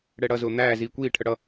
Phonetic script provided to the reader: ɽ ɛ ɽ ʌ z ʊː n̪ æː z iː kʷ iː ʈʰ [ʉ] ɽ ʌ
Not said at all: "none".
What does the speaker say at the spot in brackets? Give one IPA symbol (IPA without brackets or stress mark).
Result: ə